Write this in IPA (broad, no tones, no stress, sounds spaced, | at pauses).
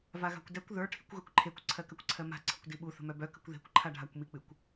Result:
v a ɣ a̤ kʷ d ɛ kʷ ð ə˞ ʈʰ i kʷ ɣ ə˞ kʷ ǃʰ e kʷ ǀʰ ɜ k ɜ kʷ ǀʰ ɜ m a̤ ǀʰ ə̤ kʷ d i ɓ u θ ə̤ m œ b œ k ə̤ kʷ ð e̤ kʷ ǃʰ a ɖʱ a kʷ m i k͡p ɨ kʷ